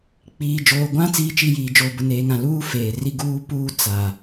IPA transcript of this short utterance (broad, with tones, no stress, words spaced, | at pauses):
k͡piː˨d͡ʒoː˨ɡʷã˦ t͡siː˦t͡ʃi˦˨jiː˨ d͡ʒoː˨bʊ˨ neː˨ ŋã˨luː˦ feː˨ ri˦ɡuː˦puː˦ t͡sa˨